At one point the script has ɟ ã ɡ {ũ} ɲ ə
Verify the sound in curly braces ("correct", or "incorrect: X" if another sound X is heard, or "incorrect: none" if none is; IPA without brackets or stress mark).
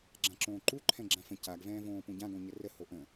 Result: incorrect: õ